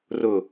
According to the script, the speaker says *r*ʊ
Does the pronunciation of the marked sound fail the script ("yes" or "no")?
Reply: no